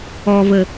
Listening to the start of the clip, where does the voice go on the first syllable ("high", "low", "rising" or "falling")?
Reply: low